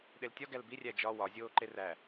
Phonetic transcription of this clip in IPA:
ɗ e l tʲ ɒ ɡ æ l b i rʲ æ d͡ʒ ɒ w ɒ zʲ oː ǃ e r æ

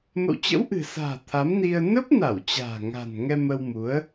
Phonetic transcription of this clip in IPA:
m ə̰˧˨ w t͡ɕ ə̰˧˥ w ʔ ɨ̤˨˩ s a̤ː˨˩ t̪ʰ a˨˦ m n i˧ ə̯ n ə˦˥ p̚ n a˧˩ w t͡ɕ a̤ː˨˩ ŋ a̤˨˩ n ŋ ɛ˧ m ə˧ w m u˨˦ ə̯

